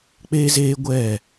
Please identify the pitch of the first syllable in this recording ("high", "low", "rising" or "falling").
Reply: high